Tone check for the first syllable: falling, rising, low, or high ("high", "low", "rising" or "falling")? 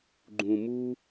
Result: low